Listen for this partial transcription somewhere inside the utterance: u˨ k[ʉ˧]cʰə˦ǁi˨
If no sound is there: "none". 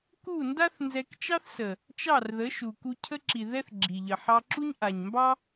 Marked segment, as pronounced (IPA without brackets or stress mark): u˧